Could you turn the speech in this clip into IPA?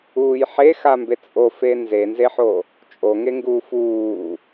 uːjħexambe t͡sʼofe nzenzeħo | t͡ʃʼoŋeŋɡuːf uː

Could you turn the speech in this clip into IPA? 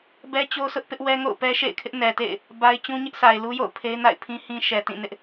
bɛ˦t͡ɕo˦sʰʊ˦ʔ pɪ˦ʔwɛ˦ ŋo̰˦˨ʊ̯pɛ˦ʃḛ˦˨ɪ̯kʰɪ˦ʔ nɛ˨tḛ˦˨ɪ̯ | ba˦ɪ̯ t͡ɕũ˦ɲɪ˦ʔsa˨ɪ̯lu˦ jo̰˦˨ʊ̯pʰe˦ɪ̯na̰˦˨ɪ̯pʰĩ˦ hĩ˦ʃɛ˨ tĩ˦˨nɪ˦ʔ

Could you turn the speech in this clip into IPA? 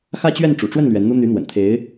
xä˥˧t͡ɕɥɛ˥˩n ʈ͡ʂṵ˨˩ʈ͡ʂwə˥˩n lɥɛ˧˥nn̪u˥ n̪y˧˥n̪wə̰˨˩nt̪ʰe˧˥ɪ̯

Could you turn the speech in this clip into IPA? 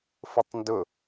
fʊtˤndʊ

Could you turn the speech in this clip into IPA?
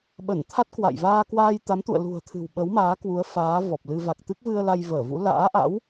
ɓə˧˩nt̪ʰa˦˥t̚kwa̰˧˨j vaː˧kwaː˧jt̪a˨˦mt̪ṵ˧˨ə̯ lṳ˨˩ə̯t̪ʰɨ̤˨˩w ɓə˨˦wmaː˨˦kwu˨˦ə̯ faː˨˦ vɔ˨˩p̚lɨ˧ va˨˩k̚t̪ɨ˦˥k̚vɨ˧ə̯ la˧jvəː˧˩vṵ˧˥ la̰ː˧˥ʔa̰˧˥w

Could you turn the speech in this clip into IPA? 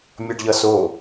mʲʌɖʎʌ so

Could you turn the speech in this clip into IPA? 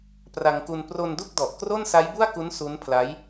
pra˧ŋku˧n pro˧ndu˥˩k̚dɔ˨˩ʔ kro˥˩nsa˦˥jbu˥˩a̯ku˦˥n su˦˥npʰla˦˥j

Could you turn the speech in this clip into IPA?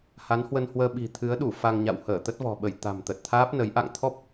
ha˨˦nhwə˧nhwəː˧ ɓi̤˨˩t̪ʰɨ˨˦ə̯ɗu˧˩ fa˧ŋɲa̰˧˨w həː˧˩t̪ə˦˥t̚vɔ̤˨˩ɓə˧˩j t̪a̤˨˩mt̪ə˨˩t̚t̪ʰaː˦˥p̚nə˨˦j ʔa̰˧˨ŋt̪ʰɔ˦˥p̚

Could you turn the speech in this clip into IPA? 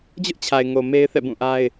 d͡ʑʊ˦ʔt͡ɕʰa˨ɪ̯ ŋo˨ me˦ɪ̯θɛ̰˦˨bũ˦˨ʔa˦ɪ̯

